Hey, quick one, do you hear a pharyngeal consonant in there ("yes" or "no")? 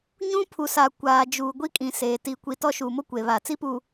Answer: no